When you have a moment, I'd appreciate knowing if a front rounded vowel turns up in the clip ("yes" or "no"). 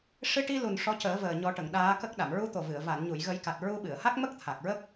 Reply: no